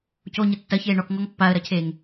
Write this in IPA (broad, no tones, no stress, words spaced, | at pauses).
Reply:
coɲɘ tːɐçeː ɳɔk ŋɔŋpːaə̯ɾɐcʰeːŋ